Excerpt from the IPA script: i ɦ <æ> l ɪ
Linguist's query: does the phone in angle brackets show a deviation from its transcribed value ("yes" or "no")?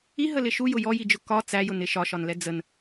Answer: yes